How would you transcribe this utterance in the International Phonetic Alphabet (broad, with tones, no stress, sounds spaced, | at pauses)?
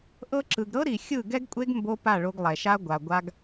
ʔ ɤ˧ ǁ ɯ˨ ɡ ɾ ɤ˦ ɾ i˨ xʲ ɯ˦˨ ɡ ɛ˦ ɡ kʷʼ e˦ ɡ m b o˦ p a˦˨ ɭ o˧ ɡ lˠ ɛ˨ ʃ a˦ ɡʷ a˨ ɡʷ a˦ ɡ